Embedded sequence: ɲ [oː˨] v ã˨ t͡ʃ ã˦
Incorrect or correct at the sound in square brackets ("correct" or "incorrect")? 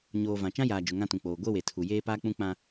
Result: correct